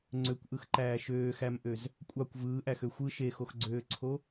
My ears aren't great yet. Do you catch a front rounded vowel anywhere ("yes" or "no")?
yes